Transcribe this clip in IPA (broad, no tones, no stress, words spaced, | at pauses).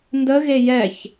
ndə ɣejɛç